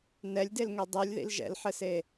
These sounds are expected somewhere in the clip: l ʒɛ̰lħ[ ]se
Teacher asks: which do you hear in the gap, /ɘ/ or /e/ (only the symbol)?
ɘ